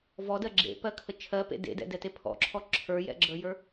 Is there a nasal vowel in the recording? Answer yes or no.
no